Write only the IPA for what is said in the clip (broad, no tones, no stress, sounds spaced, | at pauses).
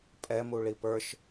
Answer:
pʼ ɛ m u ɭ i p ə˞ ʃ